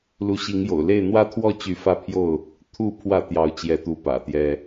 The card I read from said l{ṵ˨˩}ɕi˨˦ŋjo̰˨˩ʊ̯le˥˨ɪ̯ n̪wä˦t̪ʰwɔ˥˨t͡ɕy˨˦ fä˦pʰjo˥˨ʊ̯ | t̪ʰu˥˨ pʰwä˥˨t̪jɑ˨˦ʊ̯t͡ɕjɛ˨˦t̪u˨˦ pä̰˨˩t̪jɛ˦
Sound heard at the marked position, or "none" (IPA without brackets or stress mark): u˨˦